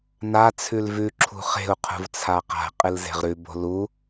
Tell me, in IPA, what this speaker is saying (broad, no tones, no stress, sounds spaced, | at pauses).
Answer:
n a t͡sʰ ʉ l v ʉ ǁʰ ṳ χ e̤ u̯ qʰ ṳ v t͡sʰ a q a̤ qʼ ɨ l z e̤ ʁ ɾ ʉ b o̤ l u